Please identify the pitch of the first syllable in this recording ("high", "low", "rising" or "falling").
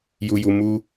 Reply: low